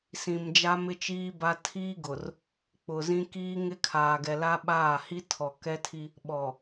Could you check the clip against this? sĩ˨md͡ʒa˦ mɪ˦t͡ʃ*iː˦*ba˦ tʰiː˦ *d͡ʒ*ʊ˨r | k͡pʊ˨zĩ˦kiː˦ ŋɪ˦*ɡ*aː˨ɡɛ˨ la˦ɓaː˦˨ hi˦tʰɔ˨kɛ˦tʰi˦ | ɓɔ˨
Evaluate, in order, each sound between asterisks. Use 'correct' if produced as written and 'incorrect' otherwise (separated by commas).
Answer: correct, incorrect, incorrect